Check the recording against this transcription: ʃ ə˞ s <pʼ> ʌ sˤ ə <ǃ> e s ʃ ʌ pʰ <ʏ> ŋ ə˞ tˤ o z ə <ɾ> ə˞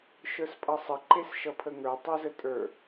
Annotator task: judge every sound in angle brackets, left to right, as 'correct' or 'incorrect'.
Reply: correct, correct, incorrect: ə, incorrect: tʼ

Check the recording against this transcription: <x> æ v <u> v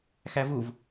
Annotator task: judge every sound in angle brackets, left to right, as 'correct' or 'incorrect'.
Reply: correct, correct

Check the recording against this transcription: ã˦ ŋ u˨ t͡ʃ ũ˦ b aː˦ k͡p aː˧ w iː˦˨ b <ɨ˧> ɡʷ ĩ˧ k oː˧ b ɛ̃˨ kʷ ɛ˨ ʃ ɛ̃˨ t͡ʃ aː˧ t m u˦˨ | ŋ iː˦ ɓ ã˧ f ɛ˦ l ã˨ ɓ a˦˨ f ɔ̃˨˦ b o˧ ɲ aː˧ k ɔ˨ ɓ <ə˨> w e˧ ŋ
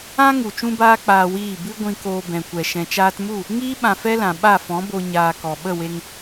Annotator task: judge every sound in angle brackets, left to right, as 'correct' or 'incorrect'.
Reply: incorrect: ɨ˦, incorrect: ə˦˨

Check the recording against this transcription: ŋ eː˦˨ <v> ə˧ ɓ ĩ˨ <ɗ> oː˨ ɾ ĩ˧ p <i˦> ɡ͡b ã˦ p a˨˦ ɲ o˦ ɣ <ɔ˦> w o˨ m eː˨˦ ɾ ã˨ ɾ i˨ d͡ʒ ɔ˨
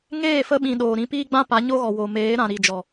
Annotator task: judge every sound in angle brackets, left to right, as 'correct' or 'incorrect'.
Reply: incorrect: f, correct, incorrect: iː˦, incorrect: ɔ˨

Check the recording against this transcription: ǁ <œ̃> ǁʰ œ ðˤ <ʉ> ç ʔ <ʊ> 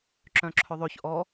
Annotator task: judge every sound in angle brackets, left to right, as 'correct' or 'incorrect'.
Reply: correct, incorrect: ø, incorrect: ɔ

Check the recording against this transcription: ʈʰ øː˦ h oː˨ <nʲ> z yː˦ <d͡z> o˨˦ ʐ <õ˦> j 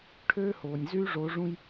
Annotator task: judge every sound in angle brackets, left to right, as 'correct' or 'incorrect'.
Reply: correct, incorrect: ʐ, incorrect: ũ˦

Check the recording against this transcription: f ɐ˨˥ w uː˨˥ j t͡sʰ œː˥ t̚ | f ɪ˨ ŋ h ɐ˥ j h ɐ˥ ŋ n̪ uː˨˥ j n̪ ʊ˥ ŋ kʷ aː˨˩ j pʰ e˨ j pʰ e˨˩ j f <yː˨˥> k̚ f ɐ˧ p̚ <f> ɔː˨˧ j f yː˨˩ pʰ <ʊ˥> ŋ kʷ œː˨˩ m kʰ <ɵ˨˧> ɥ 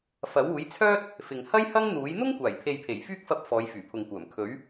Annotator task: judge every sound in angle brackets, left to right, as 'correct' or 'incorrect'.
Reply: incorrect: yː˥, correct, incorrect: ʊ˨, incorrect: ɵ˨˥

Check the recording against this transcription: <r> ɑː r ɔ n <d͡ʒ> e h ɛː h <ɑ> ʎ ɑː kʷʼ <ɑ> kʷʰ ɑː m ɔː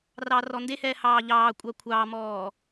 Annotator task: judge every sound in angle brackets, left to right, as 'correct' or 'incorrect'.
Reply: correct, incorrect: d, incorrect: ɑː, correct

